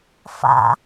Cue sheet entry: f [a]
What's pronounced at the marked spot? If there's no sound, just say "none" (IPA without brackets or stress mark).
a̰